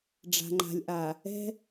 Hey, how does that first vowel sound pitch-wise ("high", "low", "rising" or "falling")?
low